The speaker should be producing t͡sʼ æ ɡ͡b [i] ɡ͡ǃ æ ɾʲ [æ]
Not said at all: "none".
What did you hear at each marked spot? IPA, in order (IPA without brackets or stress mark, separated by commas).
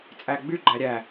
y, æ